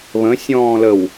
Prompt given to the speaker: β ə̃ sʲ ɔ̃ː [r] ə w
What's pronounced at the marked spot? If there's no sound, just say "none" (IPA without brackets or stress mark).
l